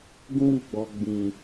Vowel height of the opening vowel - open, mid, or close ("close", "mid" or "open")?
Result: close